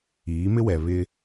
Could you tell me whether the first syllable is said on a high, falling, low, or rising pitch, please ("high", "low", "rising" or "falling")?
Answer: rising